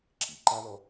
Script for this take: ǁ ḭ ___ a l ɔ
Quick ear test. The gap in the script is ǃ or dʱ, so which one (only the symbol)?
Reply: ǃ